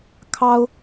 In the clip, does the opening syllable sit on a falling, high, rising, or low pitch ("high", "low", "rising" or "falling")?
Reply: high